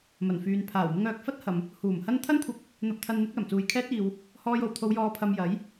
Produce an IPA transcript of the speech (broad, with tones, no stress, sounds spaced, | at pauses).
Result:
m ɐ˨˩ n f yː˨ n pʰ aː˨˩ w m ɪ˧ ŋ œː˨ k̚ f ɐ˥ t̚ h ɐ˨ m | h uː˨˩ m h ɐ˥ n t̪ʰ ɐ˥ n kʷʰ ɐ˧ k̚ | n̪ ɐ˧ p̚ t̪ʰ ɐ˧ n n̪ ɪ˨˥ k̚ l ɐ˨˩ m t͡s uː˨ j kʰ ɛː˥ t̚ iː˧ w | h ɔː˧ j o˨˩ w t̪ʰ o˨˧ w j ɔː˨˧ pʰ ɐ˨ m j ɐ˨˥ j